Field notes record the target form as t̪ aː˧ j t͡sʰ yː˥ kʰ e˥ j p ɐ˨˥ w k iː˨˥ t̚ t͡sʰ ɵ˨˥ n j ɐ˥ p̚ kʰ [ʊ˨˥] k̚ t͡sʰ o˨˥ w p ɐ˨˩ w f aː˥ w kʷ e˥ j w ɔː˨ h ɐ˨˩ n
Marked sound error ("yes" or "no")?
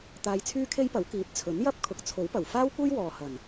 no